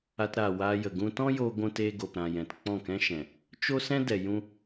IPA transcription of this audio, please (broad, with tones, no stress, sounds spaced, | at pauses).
a˧ t ɾ aː˨ w aː˧ j ə˨ ɡ ũ˧ t ɔ̃˦ j oː˧ ɡʷ ũ˧ t eː˧ ɡ o˨ p ɾ ã˨ j ɛ̃˨ t k͡p ɔ̃˦˨ k ɛ̃˦ ʃ ɛ̃˨ | t͡ʃ o˦ s ɛ̃˦ d ɛ˨ j ũ˧